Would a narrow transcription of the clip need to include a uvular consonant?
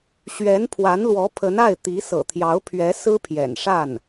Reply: no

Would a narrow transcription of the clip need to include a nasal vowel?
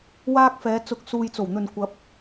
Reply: no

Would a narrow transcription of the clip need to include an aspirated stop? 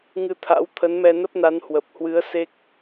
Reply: yes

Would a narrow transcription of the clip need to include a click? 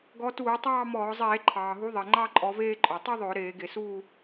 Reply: yes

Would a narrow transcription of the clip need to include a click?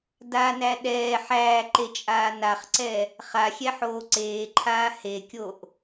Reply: yes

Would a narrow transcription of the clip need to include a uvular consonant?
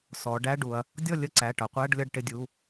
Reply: yes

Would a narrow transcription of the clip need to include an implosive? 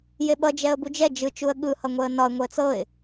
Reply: yes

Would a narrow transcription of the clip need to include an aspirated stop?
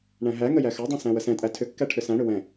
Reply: yes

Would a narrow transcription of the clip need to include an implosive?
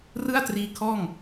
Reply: no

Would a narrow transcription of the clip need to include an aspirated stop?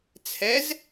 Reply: yes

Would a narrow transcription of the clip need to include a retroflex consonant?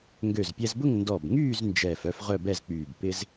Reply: no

